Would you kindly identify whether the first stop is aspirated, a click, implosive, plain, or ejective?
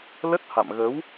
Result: plain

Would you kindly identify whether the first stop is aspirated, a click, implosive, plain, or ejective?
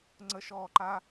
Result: click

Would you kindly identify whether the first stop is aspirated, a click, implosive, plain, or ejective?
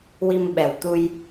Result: implosive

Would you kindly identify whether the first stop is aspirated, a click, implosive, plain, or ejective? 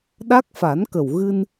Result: implosive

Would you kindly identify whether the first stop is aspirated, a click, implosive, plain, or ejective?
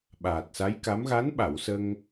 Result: implosive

